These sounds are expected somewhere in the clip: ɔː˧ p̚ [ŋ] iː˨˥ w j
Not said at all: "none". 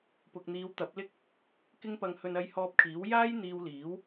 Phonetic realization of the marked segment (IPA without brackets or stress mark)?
kʰ